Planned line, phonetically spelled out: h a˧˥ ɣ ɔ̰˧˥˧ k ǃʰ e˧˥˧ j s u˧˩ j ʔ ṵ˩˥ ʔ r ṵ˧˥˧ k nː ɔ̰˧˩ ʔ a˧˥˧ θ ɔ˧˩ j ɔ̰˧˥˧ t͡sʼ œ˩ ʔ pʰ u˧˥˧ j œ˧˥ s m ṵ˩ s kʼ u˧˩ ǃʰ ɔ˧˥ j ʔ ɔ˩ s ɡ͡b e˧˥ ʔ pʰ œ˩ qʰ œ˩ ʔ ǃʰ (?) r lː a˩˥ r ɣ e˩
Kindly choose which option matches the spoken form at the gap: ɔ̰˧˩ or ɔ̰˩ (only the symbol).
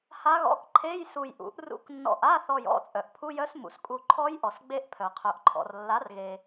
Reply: ɔ̰˩